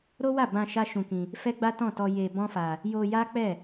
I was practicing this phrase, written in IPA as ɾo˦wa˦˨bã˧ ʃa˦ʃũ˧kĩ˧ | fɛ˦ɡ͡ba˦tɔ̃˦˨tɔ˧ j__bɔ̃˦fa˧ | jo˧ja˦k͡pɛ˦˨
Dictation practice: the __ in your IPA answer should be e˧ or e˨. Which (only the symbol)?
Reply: e˧